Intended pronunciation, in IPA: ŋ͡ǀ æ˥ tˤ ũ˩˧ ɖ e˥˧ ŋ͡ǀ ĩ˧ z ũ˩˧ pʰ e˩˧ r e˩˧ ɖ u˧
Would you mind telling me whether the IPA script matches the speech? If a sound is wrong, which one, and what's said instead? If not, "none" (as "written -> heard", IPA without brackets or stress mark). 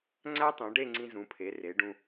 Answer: u˧ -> ũ˧